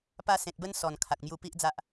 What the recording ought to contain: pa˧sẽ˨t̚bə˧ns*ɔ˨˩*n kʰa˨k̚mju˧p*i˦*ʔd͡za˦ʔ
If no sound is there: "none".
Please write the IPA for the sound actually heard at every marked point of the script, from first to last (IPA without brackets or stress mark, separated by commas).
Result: ɔ˨˩, i˦